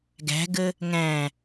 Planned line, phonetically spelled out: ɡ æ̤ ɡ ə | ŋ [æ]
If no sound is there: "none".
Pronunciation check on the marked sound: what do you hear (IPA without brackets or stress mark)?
æ̃